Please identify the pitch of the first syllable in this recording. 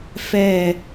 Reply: falling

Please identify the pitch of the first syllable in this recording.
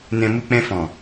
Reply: low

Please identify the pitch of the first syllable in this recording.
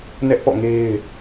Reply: high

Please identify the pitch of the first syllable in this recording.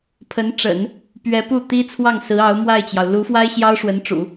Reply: rising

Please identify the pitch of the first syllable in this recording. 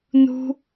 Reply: high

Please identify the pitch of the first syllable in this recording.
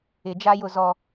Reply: low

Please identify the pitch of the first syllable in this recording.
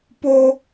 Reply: high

